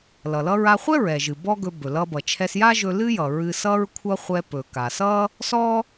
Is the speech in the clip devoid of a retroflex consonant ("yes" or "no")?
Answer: yes